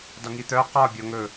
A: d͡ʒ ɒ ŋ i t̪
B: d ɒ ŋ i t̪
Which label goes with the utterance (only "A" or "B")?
B